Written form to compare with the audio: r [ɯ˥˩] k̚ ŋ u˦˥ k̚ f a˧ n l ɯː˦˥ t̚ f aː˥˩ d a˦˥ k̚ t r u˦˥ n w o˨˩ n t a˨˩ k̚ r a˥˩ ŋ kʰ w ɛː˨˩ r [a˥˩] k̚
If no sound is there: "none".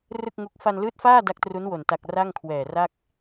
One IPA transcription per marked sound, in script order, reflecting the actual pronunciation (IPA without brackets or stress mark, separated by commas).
ɯ˥˩, a˥˩